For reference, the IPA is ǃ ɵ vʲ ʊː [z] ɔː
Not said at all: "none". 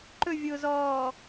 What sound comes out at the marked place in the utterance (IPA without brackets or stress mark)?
z